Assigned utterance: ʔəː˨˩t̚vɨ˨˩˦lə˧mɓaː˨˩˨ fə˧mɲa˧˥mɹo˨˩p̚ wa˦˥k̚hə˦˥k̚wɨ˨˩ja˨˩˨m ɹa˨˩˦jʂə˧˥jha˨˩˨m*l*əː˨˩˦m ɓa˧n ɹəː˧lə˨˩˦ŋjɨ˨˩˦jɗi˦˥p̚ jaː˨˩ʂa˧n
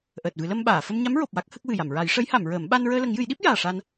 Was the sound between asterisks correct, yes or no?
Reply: no